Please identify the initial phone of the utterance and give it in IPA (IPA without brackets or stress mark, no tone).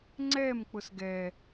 ŋ͡ǀ